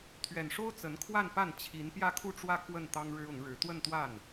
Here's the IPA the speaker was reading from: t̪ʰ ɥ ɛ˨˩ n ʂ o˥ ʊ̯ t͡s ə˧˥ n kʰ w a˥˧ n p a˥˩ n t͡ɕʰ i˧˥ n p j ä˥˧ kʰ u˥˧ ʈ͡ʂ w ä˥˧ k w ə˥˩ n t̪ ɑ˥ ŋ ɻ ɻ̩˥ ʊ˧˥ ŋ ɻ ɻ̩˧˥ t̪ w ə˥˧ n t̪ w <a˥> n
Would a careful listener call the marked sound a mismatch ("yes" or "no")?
yes